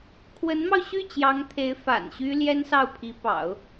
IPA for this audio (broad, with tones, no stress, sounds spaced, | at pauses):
kʰ w ə˧˥ n m ɑ˧ ʊ̯ ɕ y˥˩ t͡ɕ j ɑ˧˥ ŋ t̪ʰ e˧˥ ɪ̯ f a̰˨˩ n ɕ y˥ l j ɛ˥ n s ɑ˥˩ ʊ̯ pʰ i˧˥ p ɑ̰˨˩˦ ʊ̯